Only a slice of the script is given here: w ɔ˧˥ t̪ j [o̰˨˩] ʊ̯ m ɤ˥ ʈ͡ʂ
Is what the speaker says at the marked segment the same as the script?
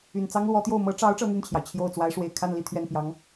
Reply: no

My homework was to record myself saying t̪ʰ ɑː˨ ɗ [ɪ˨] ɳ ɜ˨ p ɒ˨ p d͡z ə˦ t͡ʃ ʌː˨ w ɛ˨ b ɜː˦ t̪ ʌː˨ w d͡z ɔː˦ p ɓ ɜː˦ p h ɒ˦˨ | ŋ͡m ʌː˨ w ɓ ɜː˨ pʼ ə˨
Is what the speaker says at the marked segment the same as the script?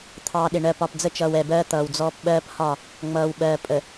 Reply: yes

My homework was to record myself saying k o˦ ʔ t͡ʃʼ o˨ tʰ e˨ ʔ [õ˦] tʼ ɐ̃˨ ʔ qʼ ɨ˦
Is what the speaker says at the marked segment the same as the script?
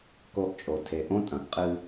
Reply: yes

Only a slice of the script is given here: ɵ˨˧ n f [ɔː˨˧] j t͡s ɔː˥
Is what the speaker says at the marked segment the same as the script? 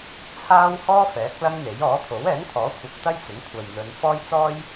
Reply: no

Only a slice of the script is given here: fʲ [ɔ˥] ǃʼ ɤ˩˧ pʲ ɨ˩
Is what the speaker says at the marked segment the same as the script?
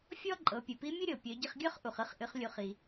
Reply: yes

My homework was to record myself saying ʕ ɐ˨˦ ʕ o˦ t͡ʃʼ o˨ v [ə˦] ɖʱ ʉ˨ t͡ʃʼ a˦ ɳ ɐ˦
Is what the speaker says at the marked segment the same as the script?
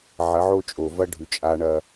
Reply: no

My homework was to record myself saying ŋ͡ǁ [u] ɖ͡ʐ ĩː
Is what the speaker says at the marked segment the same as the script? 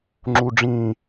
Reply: yes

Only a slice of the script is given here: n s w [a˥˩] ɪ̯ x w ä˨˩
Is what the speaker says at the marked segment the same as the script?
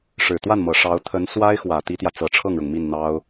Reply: no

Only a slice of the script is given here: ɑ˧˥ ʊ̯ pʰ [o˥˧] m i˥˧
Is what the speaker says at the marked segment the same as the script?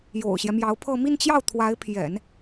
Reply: no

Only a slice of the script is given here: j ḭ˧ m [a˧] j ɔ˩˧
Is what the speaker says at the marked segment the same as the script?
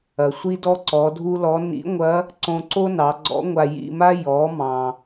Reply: no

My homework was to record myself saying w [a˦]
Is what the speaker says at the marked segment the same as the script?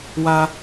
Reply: yes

